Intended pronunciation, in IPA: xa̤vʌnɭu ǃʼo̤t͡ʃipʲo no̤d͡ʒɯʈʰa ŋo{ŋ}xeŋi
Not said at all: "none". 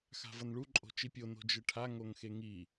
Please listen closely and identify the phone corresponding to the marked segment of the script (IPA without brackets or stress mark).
ŋ